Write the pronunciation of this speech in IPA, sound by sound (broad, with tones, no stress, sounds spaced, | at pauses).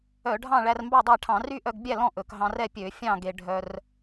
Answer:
œ˧˩˧ ɖʱ ɑ̃˥˨ ɭ æ˧ r m b ɑ˥˨ dˤ æ˥˨ ʈʰ ɑ̃˧˩˧ r y˥˨ ʔ œ˧ ɡ bʲ æ˥˨ l ɔ̃˥˨ ʔ ɵ˧˩˧ k ɦ ɑ̃˧ r ɛ˥˨ pʲ ø˧˩˧ fʲ ɑ̃˥˨ ɡ e˧ ɖʱ œ˧ r